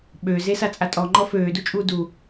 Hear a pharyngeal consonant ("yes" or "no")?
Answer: no